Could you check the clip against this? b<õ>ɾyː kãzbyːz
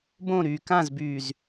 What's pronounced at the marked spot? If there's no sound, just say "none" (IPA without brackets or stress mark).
õ